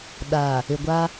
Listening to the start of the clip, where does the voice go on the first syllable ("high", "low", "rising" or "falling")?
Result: low